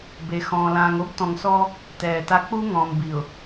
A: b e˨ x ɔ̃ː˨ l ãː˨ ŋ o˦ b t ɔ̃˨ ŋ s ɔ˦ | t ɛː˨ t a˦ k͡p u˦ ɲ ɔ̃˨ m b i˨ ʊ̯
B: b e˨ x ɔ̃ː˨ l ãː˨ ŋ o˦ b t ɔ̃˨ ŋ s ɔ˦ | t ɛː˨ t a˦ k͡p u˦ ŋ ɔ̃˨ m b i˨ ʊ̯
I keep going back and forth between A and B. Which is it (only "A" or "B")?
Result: B